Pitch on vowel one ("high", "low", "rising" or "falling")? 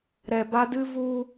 low